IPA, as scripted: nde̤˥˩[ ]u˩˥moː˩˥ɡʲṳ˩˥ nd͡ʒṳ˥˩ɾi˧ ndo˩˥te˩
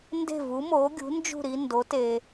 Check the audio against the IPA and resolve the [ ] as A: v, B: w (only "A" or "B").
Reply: A